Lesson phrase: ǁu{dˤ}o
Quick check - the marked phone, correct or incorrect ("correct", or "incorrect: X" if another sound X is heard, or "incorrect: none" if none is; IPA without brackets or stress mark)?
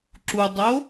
correct